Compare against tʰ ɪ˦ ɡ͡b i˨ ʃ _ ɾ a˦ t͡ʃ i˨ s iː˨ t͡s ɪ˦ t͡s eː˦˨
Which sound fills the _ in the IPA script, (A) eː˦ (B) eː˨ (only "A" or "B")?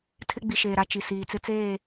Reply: B